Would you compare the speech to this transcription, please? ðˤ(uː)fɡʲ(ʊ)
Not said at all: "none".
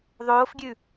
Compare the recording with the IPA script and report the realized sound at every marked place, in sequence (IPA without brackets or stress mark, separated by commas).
oː, ʉ